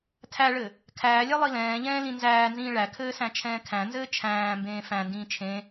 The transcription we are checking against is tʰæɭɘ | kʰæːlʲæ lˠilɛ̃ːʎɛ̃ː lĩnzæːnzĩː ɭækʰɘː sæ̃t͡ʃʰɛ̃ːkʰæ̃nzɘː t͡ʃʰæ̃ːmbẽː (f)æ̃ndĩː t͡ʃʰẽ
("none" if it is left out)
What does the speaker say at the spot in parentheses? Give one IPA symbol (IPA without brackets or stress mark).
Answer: f